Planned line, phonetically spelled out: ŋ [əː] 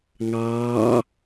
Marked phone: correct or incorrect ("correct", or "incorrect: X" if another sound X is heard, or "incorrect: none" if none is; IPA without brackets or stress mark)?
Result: incorrect: ɑː